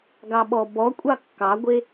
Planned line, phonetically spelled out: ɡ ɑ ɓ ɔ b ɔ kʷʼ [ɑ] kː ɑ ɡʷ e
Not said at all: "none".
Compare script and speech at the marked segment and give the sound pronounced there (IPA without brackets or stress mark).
ɑ